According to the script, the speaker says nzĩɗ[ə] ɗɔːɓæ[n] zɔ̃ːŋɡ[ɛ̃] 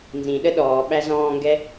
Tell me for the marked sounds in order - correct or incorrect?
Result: correct, incorrect, incorrect

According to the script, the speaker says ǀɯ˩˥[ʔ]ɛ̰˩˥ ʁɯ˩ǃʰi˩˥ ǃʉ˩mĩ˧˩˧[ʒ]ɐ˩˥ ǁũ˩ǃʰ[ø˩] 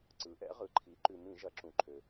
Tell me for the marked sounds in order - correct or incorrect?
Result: correct, correct, correct

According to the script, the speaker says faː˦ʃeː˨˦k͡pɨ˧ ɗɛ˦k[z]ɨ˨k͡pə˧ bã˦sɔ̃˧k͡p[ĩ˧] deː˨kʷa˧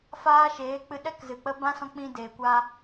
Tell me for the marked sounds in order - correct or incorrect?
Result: correct, correct

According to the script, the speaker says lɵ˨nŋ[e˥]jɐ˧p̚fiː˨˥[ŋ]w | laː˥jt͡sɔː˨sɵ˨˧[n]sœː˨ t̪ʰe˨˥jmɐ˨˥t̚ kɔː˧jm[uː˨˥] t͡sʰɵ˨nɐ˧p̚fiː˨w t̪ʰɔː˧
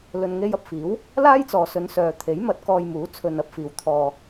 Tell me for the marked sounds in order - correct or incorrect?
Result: incorrect, incorrect, correct, correct

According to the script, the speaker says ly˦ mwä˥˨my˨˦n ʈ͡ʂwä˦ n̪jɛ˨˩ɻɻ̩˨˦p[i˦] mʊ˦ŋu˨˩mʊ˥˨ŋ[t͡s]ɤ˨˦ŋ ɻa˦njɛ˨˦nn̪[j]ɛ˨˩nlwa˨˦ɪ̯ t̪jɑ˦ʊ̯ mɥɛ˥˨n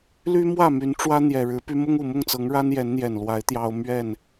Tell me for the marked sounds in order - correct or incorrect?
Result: incorrect, correct, correct

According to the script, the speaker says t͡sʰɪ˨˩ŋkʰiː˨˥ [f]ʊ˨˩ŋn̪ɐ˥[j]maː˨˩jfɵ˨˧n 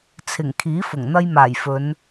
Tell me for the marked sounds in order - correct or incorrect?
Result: correct, correct

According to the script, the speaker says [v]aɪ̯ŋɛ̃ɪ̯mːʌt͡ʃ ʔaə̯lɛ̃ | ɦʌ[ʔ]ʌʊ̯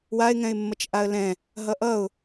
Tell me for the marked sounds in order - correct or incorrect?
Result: incorrect, correct

